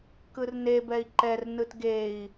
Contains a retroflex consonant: no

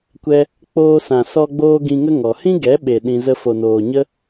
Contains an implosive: yes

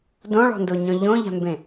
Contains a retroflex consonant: yes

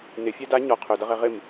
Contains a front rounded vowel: yes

